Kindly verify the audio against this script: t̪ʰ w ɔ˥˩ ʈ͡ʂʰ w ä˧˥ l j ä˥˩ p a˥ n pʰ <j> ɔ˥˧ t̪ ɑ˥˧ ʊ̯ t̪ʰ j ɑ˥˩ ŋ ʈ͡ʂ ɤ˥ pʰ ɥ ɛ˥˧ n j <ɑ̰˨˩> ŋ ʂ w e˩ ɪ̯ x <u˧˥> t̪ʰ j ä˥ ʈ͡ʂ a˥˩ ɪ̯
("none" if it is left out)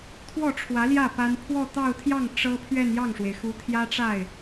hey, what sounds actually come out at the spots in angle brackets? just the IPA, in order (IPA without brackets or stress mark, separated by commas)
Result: w, ɑ˥˩, u˧˥